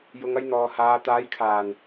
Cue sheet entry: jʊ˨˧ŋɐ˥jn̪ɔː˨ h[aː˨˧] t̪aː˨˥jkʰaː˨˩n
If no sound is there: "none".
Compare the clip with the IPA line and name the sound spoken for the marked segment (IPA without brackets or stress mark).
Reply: aː˨˧